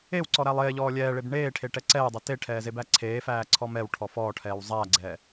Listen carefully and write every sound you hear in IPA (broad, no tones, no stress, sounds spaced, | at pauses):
e w ǀ ɔ ɾ æ lˠ eː ʎ ɔː lʲ ɛː ɭ e b ɳ eː ʈʰ e ʈ ɛ ǀ ɛː dˤ e t e ʈʰ ɛː z e b æ ǀʰ eː f æː ǀʰ ɔ m ɛ w ʈʰ ɔ f ɔː ʈʰ ɛː w zˤ æː ɡ͡ǀ ɛː